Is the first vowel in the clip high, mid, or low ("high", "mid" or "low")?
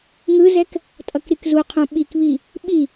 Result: high